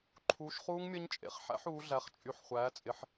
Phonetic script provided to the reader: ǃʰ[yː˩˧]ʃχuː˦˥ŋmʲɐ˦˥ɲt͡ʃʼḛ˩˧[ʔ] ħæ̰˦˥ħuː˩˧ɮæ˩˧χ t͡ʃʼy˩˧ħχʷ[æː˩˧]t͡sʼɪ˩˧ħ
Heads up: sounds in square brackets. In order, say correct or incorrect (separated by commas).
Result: incorrect, incorrect, correct